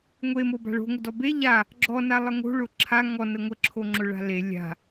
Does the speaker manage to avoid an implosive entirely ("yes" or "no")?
yes